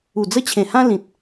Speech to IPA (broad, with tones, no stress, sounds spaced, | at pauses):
u˨˩ d͡z ə˧ t͡ɕʰ ẽ˨˩ h ã˧ l ĩ˨ t̚